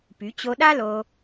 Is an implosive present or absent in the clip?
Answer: present